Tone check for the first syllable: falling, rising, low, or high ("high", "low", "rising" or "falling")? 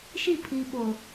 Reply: falling